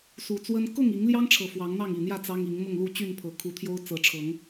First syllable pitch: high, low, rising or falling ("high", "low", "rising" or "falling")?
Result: low